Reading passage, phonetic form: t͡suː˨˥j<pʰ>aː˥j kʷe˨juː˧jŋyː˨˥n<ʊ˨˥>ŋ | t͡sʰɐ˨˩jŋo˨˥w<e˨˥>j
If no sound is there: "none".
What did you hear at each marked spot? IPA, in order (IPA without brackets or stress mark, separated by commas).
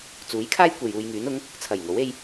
kʰ, ʊ˨˥, e˧